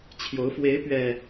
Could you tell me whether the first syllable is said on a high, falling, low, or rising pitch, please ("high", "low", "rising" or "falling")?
rising